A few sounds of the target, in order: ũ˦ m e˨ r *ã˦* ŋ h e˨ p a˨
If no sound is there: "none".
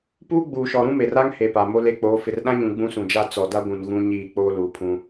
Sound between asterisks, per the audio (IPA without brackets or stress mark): a˦